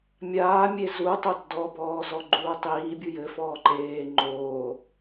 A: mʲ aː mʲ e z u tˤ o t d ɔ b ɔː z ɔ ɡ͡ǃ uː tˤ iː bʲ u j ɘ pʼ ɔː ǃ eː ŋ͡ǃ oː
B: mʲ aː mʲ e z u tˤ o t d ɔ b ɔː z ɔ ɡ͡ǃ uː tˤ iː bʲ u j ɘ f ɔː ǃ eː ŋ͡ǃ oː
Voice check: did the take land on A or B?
B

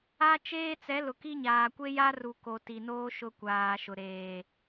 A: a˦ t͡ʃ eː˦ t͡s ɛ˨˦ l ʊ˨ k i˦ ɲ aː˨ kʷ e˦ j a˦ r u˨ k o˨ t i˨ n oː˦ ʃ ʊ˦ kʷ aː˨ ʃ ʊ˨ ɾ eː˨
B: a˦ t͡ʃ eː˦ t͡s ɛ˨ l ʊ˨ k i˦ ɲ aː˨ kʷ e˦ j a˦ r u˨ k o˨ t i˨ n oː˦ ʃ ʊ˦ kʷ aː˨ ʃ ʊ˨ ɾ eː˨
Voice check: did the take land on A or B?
A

